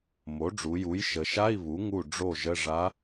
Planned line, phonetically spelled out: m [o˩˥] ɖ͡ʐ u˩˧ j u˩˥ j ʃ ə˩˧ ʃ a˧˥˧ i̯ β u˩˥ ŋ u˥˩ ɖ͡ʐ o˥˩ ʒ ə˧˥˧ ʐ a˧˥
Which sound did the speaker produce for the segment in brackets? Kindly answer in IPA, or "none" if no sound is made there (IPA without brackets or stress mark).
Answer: o˩˥